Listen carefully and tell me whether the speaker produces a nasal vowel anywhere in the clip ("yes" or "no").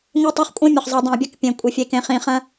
yes